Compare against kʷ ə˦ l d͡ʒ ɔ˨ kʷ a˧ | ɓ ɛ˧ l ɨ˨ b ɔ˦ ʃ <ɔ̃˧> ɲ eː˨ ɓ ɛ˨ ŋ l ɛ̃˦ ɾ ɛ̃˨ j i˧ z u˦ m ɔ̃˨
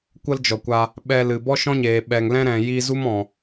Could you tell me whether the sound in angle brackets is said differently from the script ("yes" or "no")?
yes